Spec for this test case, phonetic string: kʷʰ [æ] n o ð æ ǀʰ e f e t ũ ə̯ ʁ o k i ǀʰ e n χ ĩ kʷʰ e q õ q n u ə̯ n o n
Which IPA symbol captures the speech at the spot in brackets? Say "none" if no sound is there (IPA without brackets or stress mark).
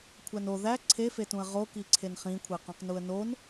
æ